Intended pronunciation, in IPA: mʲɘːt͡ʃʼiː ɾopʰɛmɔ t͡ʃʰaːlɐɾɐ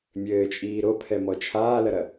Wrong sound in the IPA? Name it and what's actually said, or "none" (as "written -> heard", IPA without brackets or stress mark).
none